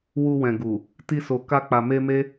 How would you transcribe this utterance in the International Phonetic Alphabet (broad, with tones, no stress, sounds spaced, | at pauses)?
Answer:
w u˧ w ɛ̃˨ ɡ u˨ | t i˧ s o˨ k a˧ k͡p a˨ m e˧ m e˦